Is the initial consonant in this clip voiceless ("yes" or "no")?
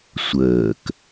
yes